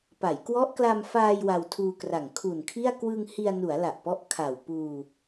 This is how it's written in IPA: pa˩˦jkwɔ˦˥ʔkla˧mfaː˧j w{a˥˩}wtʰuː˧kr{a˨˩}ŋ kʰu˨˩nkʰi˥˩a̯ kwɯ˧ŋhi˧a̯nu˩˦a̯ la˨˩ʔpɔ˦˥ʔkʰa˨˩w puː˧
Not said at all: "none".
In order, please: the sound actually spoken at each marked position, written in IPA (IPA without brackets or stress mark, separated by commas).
a˧, a˨˩